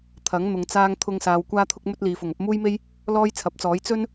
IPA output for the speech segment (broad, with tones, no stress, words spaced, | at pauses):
t̪ʰɐ˨˥ŋ n̪ʊ˨˧ŋt͡saː˥ŋ t̪ʰʊ˧ŋsaː˨w kʷaː˧t̪ʰʊ˧k̚mɵ˧t̚ liː˨˧fʊ˨ŋ ɐ˧p̚muː˥jme˥j | lɔː˥jt͡sʰɐ˨˥p̚t͡sɔː˨˥j t͡sɵ˥n